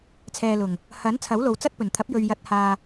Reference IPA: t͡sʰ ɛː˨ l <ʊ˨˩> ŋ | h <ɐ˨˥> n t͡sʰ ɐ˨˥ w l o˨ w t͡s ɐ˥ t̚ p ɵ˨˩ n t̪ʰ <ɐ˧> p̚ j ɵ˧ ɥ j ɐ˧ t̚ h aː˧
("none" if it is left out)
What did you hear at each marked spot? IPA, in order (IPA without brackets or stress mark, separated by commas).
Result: ʊ˨˩, ɐ˨˥, ɐ˨˥